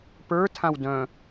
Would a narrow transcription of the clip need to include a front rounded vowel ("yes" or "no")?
yes